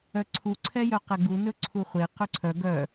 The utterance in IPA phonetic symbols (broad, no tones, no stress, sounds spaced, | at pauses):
œ ǀʰ u ǀʰ ɛ j œ q ɛ ɡ u n ɵ ǀʰ u χʷ e q ɵ ǀʰ œ ɡ œ